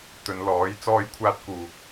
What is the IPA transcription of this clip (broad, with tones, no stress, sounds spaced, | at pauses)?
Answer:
t̪ ɵ˨˧ n l ɔː˨˥ j t͡s ɔː˧ j kʷʰ aː˧ t̚ k uː˨ k̚